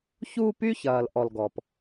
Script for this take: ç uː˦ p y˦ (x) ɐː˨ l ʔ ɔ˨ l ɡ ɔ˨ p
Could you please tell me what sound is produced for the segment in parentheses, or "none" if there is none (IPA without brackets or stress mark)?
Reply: ç